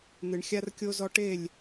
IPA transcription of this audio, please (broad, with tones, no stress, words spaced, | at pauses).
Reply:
n̪ɨ˨ɳxʲa˦r kʲo˦zɔ˦ ʈe˦˨lʲ